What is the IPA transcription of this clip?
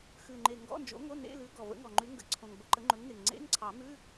xʉ˨˩ŋ͡ǃe˨˩ ŋɡɔ̰˧˥˧nd͡ʒo̰˨˥ŋo˧˥˧ nḛ˧˥˧lʉ˨˥ ɡɔ˨˩və̰˨˥ŋɔ˨˩ŋ͡ǃʉ˨˥ ŋɡə̰˨˩ǀʰõ˨˩ŋ bə˧˥˧ǃə˨˥ŋ͡ǃɵ˨˥ŋnɪ˨˩ŋ ŋ͡ǀḛ˧˥˧ŋǀʰɑ˨˩˦mʉ˧˥˧

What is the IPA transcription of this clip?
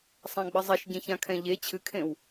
sˤãɡ͡bɘzˤɛʃ ɟẽçãkʰɛ̃ʎe t͡ɕʰɨkʰẽw

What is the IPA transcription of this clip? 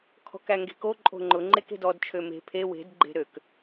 kʰɔ̤kæŋɡe̤ko ǃʼo̤ŋ͡ǃʊ ŋ͡ǃeke̤dɔd t͡ʃʰøme̤ pʰe we̤d ɡ͡ǃe̤ɾøk

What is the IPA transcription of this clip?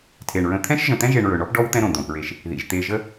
tʰe˩ɳɹə̃˨ t̪ʰɛ̃˦ʃʒə̃˨t̪ɛ̃˦ ʒe˨ɳɹɵ˩ɳɔ˦p ɖɔ˥wt̪ɛ̃˦ ɾõ˩d̪õ˩pɹe˨ʃ | ðḭ˩ʒt̪e˨ʒə˦

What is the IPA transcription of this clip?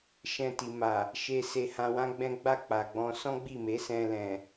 ʃɛ̃˧ti˨ma˨ | ʃe˧ se˧hã˧wã˦ɡ͡bɛ̃˦ ɡ͡ba˦˨k͡pa˨ɡ͡bɔ̃˧ sɔ̃˦ɡ͡bi˦˨me˨˦sɛ̃˧ lɛ̃˨

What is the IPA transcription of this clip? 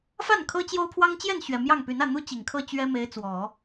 fa˥˩n kʰɤ˥t͡ɕjo˥ʊ̯pʰwɑ˥ŋ t͡ɕjɛ˥˩nɕɥɛ˨˩ mjɑ˥˩ŋpy˧˥n ä˥˩n̪u˥ t͡ɕi˨˩ŋkʰɤ˥˩ t͡ɕɥɛ˥ me˧˥ɪ̯t͡swɔ˨˩˦

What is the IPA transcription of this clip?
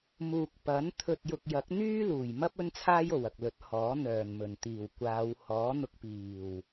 muː˨k̚ pɐ˨˥n t̪ʰɵ˨t̚jʊ˨k̚jɐ˨˥k̚ n̪yː˥luː˨˩j mɐ˥p̚ ɵ˥nt͡sʰaː˥jo˨˩w ɐ˨k̚lɵ˨˥t̚hɔː˨˥ n̪œː˨˩nmɵ˨˩nt̪iː˨˩wkʷaː˨˧w hɔː˨˥n̪ʊ˧k̚piː˨˩w

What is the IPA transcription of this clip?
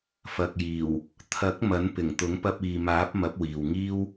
fɐ˨k̚jiː˨˩w | t̪ʰɐ˨˥k̚ mɐ˨˥npɪ˨˩ŋ t̪ʊ˨˥ŋpɐ˧p̚iː˨maː˨˥p̚ mɐ˨˥p̚wiː˨wŋiː˥w

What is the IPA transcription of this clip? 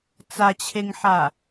t͡sat͡ɕʰeŋħa

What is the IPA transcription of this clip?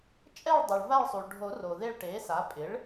t͡ʃʼɛ˦˨ɭdˤo˩ɭ va˦˨ɭsˤu˩ɭɖʱo˨˩˦ ro˩ðe˦˨ɭʈe˩˥sa˩˥ pʼɪ˩˥ɭ

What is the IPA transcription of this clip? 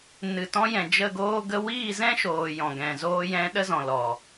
nɨ˨tɔ̃˧jɛ̃˨ d͡ʒə˦˨ɡoː˦ɡə˦ wiː˦˨zɛ̃˦ʃoː˨ jɔ̃˨ɡɛ̃˨ zoː˧jɛ̃˧ɗə˦ zɔ̃˨lɔ˨

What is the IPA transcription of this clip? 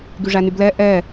ɡyʐænyblɛ ʔɛ

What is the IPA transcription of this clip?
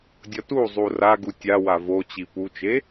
dʲʌtuzˤu raɡu tʲawa vot͡ɕi put͡ʃe

